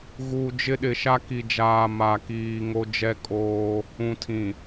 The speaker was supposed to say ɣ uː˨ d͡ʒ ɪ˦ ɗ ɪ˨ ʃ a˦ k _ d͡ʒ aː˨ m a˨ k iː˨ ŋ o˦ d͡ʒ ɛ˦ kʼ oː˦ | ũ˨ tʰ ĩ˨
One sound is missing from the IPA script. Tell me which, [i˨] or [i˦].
i˨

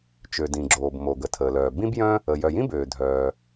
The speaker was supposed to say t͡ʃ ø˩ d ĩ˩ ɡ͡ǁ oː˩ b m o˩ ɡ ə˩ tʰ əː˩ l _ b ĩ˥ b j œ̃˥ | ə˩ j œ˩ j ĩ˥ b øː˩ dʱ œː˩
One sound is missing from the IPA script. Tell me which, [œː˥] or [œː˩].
œː˩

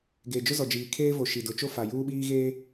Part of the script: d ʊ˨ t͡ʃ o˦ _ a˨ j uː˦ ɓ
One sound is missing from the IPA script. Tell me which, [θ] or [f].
f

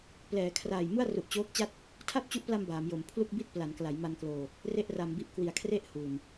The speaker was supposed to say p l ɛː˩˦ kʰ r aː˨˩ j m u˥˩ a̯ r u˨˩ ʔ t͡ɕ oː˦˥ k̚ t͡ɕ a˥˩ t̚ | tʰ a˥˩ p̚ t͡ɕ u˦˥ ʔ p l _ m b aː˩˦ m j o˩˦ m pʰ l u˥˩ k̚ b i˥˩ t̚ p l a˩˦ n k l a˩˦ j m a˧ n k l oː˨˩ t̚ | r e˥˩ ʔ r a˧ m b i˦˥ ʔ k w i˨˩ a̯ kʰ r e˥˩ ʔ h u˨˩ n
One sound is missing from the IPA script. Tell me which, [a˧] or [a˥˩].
a˧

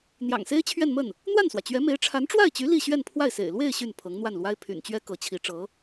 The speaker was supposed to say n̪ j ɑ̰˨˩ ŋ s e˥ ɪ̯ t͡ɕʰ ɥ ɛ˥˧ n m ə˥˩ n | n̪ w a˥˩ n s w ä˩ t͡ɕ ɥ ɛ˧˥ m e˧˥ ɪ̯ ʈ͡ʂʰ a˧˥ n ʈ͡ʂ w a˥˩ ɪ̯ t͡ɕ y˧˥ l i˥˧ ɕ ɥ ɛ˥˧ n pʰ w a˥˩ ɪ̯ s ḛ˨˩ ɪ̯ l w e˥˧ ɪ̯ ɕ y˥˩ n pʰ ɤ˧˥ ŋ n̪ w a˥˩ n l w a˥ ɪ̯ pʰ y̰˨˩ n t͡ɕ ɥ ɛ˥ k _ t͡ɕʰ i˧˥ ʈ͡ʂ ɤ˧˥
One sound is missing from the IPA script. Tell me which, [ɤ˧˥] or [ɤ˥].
ɤ˧˥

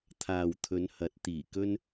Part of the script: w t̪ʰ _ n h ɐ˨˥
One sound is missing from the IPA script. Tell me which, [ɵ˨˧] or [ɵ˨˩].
ɵ˨˧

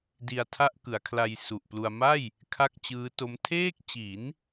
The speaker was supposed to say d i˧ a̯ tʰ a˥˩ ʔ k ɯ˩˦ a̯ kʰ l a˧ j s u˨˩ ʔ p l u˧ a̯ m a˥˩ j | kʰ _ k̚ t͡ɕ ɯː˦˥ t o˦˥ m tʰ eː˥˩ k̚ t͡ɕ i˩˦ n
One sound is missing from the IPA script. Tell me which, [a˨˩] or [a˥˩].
a˥˩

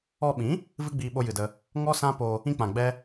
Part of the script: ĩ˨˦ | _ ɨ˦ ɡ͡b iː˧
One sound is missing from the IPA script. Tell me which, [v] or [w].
v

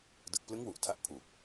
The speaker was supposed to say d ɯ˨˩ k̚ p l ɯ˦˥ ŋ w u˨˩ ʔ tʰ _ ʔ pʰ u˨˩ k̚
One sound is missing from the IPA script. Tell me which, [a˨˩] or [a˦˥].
a˦˥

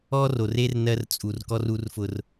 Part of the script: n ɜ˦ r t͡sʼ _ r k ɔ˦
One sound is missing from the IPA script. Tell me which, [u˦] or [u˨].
u˨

